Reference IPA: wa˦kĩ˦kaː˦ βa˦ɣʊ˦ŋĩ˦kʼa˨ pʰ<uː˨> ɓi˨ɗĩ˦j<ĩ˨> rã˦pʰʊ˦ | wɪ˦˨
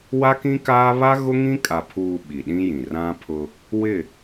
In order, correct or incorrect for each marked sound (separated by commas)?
correct, correct